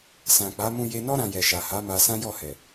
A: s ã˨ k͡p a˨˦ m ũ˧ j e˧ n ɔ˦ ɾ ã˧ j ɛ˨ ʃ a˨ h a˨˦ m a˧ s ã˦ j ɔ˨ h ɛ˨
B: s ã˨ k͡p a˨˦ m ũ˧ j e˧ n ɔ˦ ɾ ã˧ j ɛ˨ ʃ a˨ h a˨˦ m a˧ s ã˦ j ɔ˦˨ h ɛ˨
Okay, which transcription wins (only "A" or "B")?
B